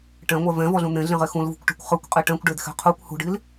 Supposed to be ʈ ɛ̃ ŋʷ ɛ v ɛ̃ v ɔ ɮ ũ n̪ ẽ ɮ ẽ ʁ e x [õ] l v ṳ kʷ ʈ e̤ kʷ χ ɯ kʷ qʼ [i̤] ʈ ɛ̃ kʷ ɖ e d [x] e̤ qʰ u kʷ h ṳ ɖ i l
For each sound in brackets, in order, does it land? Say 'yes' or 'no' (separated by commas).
no, no, yes